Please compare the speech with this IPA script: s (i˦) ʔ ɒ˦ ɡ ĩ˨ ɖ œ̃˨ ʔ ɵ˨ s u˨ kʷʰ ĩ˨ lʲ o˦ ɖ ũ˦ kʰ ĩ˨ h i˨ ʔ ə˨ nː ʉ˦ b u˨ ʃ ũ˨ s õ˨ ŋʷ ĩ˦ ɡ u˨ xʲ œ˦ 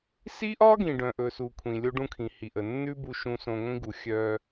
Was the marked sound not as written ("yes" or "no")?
no